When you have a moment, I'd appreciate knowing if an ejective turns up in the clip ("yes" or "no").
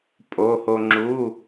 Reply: yes